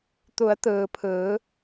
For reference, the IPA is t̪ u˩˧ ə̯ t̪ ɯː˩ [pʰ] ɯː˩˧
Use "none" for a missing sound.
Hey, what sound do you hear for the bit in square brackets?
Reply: pʰ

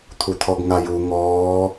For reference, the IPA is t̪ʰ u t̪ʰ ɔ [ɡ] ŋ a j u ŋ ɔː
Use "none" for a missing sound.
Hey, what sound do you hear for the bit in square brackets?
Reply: ɡ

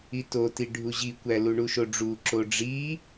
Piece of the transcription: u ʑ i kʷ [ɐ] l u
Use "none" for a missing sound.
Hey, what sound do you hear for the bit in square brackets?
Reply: æ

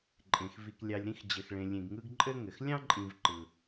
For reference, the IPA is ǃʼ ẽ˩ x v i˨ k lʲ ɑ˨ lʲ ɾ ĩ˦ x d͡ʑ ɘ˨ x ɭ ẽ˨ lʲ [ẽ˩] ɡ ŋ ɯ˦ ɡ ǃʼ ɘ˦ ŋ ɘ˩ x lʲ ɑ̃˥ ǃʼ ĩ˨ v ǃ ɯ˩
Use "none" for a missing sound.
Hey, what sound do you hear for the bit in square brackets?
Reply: ẽ˨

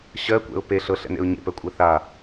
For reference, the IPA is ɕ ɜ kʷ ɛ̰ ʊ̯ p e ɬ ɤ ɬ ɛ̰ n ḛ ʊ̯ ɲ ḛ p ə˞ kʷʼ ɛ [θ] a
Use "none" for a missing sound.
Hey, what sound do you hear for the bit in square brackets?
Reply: θ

